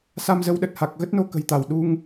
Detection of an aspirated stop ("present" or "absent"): absent